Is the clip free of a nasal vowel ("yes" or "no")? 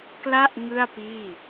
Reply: yes